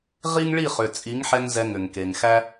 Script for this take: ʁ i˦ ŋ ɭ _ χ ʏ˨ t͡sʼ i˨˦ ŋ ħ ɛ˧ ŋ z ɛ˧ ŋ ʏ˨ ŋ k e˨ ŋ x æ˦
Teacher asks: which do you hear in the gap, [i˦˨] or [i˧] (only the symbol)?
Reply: i˦˨